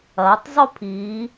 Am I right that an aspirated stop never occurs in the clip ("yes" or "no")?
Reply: no